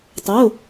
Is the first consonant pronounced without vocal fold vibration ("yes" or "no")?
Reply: yes